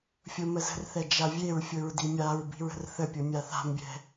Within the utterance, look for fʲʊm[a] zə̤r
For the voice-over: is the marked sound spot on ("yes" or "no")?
no